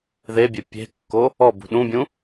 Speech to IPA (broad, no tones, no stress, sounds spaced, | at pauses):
ð e bʲ e pʲ e̤ kː o | ɔ b ṳ ɗ ũ bʲ ũ